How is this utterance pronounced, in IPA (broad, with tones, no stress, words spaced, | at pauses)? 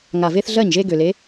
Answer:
ŋa˨˩ ve˦θɮɜ˥˩ɲʒe˦ ɡø˨˩ le˨˦